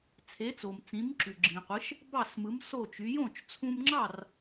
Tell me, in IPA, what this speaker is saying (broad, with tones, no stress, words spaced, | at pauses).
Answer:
t͡sʰe˩˥t͡so˩m t͡sĩ˩˥m ǁy˩ ɡ͡ǁĩ˩qʷɯ˩˥ʃ | bɑ˥˩smɯ˩˥m so˥˩t͡ʃy˩˥ jõ˥˩t͡ʃt͡sʰũ˧mŋ͡ǁɑ˥˩r